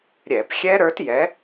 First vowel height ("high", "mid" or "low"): mid